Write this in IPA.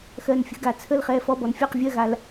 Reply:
x ɜ˧ n fʲ ə̰˥˧ ɡ a˧ t͡sʰ ə˥˧ l χ ɛ˥˧ f ɔ˥˧ b ɔ˧ n fʲ ɔ˥˧ q vʲ ɜ˥˧ ɣ a˧ l

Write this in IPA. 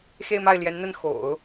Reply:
x e˥˧ ɪ̯ m a˥˩ ɪ̯ l j ɛ˧˥ n n̪ ə˥˩ n x o̰˨˩˦ ʊ̯

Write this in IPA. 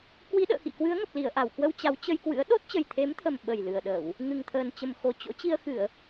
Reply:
k w i˨˦ ɗ ə̰ː˧˨ x ḭ˧˨ k w ɨ˨˦ ə̯ ŋ ə˨˩ p̚ l i˧˩ ə̯ ʔ a˧˩ w k w ə˧ w t͡ɕ a˨˦ w t͡ɕ ə˧ j k w ɨ̰˧˥ ə̯ ɗ o˦˥ t̚ t͡ɕ ə˨˩ j t̪ʰ e˨˦ m t̪ʰ ə˨˩ m ɓ ə˨˩ j l ɨ˨˩ ə̯ ɗ əː˧˩˨ w | ŋ ɨ˨˩ ŋ t̪ʰ əː˨˩ n t͡ɕ ə˨˩ m x o˨˩ t͡ɕ o̰˧˥ t͡ɕ i˧ ə̯ x ɨ˧˩˨ ə̯

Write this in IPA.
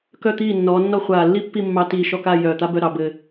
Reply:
k œ˧˩ t̪ iː˧˩ nː ɔː˩˧ nː ɔ˥˧ χʷ aː˧˩ lː i˥ pː i˥˧ mː ɑ˧ t iː˧˩ ʃ ɔ˥˧ k aː˥˧ j œː˧˩ t̪ a˥ b œ˥ ɾ ɑ˧ b ɘː˧

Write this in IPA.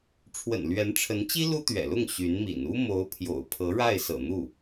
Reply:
ʈ͡ʂʰ w ə̰˨˩ n l ɥ ɛ˧˥ n ʈ͡ʂʰ ə˧˥ n t͡ɕ i˥ l u˥ t̪ ɥ ɛ̰˨˩ l ʊ˥˩ ŋ ɕ y˧˥ n m ḭ˨˩ n u˥ m o˧˥ ʊ̯ pʰ j o̰˨˩ ʊ̯ pʰ ɤ˧˥ ɻ a˥˩ ɪ̯ s ɤ̰˨˩ n̪ u˥˩

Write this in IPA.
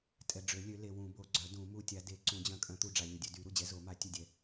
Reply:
tʼ ɛ˨ ɖ͡ʐ ø˨˩˦ lʲ ø˨˦ l e˨ w ũ˨˩˦ b o˨˩˦ ɡ͡ǀ œ˨˩˦ d ũ˨˩˦ m u˦˨ tʲ a˨˦ d e˨˩˦ ǀ ũ˨˩˦ d͡ʑ œ̃˨˦ kʼ œ̃˨˦ t̪ u˦˨ ɖ͡ʐ a˨ lʲ u˨˩˦ dʲ œ˨˦ d y˨˩˦ ɾ u˨ d͡ʑ ɛ˨˦ z o˨˩˦ m a˨˩˦ tʲ ø˦˨ dʲ ɛ˨˦

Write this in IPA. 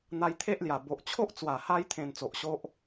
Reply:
n̪ a˧ j t̪ʰ e˦ ʔ l j a˨˩ b o˨ ʔ t͡ɕʰ o˦ ʔ t͡s w a˨˩ h a˧ j t̪ʰ ẽ˨˩ n t͡s o˨ ʔ ɕ o˦ ʔ

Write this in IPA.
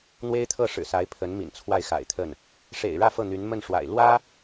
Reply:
n̪ w e˥ ɪ̯ t̪ʰ ɤ˥˩ ʂ ɻ̩˨˩ s a˧˥ ɪ̯ pʰ ə˧˥ n m ḭ˨˩ n t͡sʰ w a˥˩ ɪ̯ x a̰˨˩ ɪ̯ t̪ʰ ə˥˩ n | ʂ ḛ˨˩ ɪ̯ ɻ ä˥˧ f ɤ˥˩ n̪ y˧˥ n m ə˥˩ n ʂ w a̰˨˩ ɪ̯ l w ä˥

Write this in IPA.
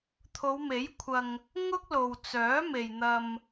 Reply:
t̪ʰ o˨˧ w m e˨˥ j kʷʰ ɐ˧ ŋ | ŋ ʊ˥ k̚ l o˨ w t͡s œː˨˥ m e˨ j n̪ ɐ˧ m

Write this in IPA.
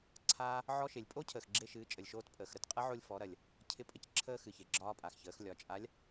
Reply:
ǀʰ aː˧ | ʕ ɔ˧ ʃ e˩ lʲ pʼ o˥ cʰ əː˩ x ɡ͡ǁ e˧ ʃ ɨː˩˧ t͡ʃʼ ə˩ lʲ ʃ oː˧ t pʼ əː˩ x ɾ ə˧˥ t qʼ ɐ˧˥ ʕ o˧ lʲ f ɔ˩˧ ɾ ɐ˩ lʲ | cʰ ɪ˧ pʼ ə˧ c ǁʰ əː˧ x ɨ˩ ç e˩ ɡ͡ǁ ɒː˧ pʼ a˩ x ç əː˩˧ x lʲ ɒ˩˧ t͡ʃʼ a˧˥ lʲ

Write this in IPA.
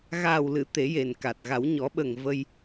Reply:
ɣ aː˨˩ w l ɨ˨˩˨ t̪ e˨˩˦ j e˨˩ n k a˨˩ t̚ ɣ a˨˩˦ w ɲ ɔ˨˩˦ ɓ ə˨˩ ŋ v ə˧ j

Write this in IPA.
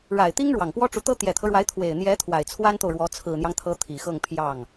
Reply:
ɻ a˨˩ ɪ̯ t̪ i˥ ŋ ɻ w ɑ˨˩ ŋ p w ɔ˥ ʈ͡ʂ u˧˥ t̪ ɤ˥ t̪ j ɛ˨˩ t̪ʰ ɤ˦ ɻ w a˧˥ ɪ̯ t̪ʰ w e˨˩ ɪ̯ n̪ j ɛ˧˥ t̪ʰ w a˨˩ ɪ̯ t͡sʰ w a˥ n t̪ o˨ ʊ̯ ɻ w ɔ˧˥ t͡sʰ ɹ̩˨˩ n̪ j ɑ˦ ŋ t̪ʰ ɤ˧˥ t̪ʰ i˨˩ x ɤ˥˧ ŋ pʰ j ɑ˥˩ ŋ

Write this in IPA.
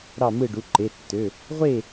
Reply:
ɾ ɑ˥˨ m ɯ˥˨ ɖ u˩˧˩ ǃ e˩˧˩ tː ø˩˧˩ | ʁʷ e˥˨

